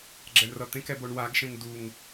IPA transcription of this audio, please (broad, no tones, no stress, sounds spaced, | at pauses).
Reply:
ɡ͡ǁ ɛ ɳ r ʌ t̪ ẽ k ɛ b o ɳ w a ɡ ʃ ẽ ŋ d u ŋ